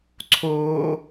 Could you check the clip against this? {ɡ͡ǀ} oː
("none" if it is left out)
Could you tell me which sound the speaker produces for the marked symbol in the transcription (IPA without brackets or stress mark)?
ǀʰ